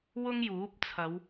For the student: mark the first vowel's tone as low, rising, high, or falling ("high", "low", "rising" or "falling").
high